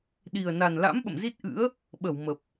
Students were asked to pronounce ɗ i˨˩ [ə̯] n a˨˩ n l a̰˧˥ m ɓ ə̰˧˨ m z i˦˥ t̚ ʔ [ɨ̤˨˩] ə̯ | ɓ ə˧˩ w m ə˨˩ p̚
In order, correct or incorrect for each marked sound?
correct, incorrect: ɨ̰˧˥

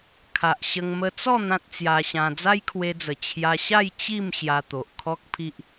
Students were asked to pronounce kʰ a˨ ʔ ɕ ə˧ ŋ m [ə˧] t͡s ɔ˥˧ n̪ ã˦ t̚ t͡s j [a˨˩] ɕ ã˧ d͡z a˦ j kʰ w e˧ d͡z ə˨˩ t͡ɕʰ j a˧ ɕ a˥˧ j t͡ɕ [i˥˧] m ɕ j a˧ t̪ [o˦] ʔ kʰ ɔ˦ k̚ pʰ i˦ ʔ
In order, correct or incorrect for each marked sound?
correct, incorrect: a˧, correct, incorrect: o˨

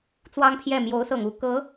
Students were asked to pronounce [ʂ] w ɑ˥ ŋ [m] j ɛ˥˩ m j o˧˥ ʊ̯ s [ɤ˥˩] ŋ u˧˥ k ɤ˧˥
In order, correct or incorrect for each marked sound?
incorrect: t͡s, incorrect: pʰ, incorrect: ɤ˨˩

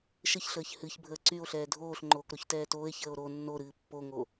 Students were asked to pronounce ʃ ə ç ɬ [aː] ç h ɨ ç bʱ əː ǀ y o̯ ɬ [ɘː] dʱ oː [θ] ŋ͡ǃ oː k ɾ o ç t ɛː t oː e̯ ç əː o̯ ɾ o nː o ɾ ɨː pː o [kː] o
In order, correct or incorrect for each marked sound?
incorrect: əː, incorrect: ɛː, incorrect: ɬ, incorrect: ŋ

